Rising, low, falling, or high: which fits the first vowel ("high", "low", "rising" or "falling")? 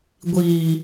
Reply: low